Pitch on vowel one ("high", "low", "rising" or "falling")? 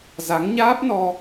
rising